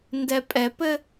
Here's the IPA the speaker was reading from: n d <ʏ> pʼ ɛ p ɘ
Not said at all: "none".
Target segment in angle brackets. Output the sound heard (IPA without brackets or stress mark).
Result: ɛ